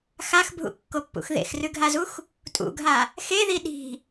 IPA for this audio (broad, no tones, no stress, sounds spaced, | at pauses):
x a x bʱ ṵ kː o pː ṵ x ð ḛ x r ʉ ɡʱ a z u x | tʼ ṵ ɡʱ a | x e ð i ɗ i̤